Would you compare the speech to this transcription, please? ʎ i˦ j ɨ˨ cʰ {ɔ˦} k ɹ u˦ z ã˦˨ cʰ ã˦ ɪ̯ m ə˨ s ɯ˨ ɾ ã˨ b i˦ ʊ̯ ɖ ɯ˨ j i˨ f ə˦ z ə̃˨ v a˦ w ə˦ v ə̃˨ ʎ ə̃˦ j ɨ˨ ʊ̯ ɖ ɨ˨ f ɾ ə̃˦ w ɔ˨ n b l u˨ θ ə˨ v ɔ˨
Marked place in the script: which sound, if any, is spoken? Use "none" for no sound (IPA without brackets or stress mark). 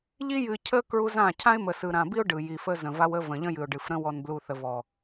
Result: ə˦